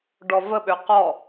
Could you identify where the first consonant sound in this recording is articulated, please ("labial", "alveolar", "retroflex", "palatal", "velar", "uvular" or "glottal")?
retroflex